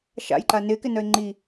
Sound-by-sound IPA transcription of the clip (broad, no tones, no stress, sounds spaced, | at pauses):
ʃ a̰ j ǃ a n ɪː k ɪ n œ ɪ̯ ŋ͡ǃ i